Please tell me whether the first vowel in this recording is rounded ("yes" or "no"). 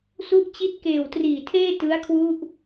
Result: yes